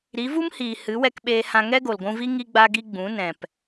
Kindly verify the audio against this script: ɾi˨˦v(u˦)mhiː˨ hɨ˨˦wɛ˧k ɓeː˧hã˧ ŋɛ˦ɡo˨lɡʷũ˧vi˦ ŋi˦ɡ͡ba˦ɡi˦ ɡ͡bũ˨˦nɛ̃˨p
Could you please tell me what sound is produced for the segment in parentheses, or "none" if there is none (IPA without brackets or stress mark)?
u˦